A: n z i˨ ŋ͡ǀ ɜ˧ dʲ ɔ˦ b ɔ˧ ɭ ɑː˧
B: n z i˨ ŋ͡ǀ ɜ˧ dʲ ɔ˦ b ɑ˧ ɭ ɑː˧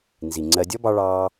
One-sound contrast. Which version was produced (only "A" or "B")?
B